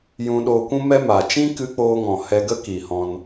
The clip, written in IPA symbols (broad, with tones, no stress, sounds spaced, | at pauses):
j ũ˧ ɗ oː˧ kʷ ũ˦ m ɛ˦ m a˨ t͡ʃ ĩ˦ k ɨ˧ k͡p oː˧ ŋ ɔ̃˨ h ɛ˧ ɡ ə˦ k i˨ h ɔ̃˧ n